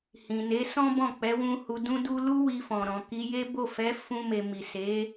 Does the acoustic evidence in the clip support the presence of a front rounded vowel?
no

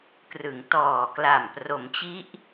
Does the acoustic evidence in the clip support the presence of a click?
no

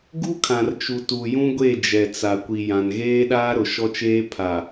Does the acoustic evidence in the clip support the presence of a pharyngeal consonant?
no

